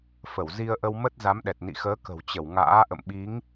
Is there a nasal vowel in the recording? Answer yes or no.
no